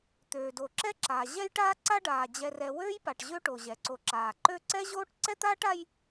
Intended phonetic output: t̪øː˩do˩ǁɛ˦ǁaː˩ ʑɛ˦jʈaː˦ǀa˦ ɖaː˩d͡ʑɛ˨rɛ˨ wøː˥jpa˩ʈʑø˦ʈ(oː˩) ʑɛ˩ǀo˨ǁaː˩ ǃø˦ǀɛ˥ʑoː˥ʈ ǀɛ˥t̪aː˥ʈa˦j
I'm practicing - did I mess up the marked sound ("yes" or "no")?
yes